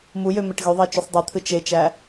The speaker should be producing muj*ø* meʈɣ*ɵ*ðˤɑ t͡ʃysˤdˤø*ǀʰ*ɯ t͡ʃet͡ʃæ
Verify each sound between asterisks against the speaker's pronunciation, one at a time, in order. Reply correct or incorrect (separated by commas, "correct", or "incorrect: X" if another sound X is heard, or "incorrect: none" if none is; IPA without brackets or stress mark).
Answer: correct, incorrect: ø, incorrect: t̪ʰ